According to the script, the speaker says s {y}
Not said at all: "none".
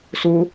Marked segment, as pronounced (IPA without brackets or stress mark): u